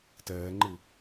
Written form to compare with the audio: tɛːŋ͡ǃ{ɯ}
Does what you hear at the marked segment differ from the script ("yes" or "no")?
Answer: no